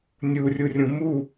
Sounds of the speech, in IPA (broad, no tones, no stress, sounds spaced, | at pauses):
nʲ u rʲ u rʲ ũ m u